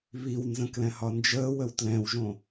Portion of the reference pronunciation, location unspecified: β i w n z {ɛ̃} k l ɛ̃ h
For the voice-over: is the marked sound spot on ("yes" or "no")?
no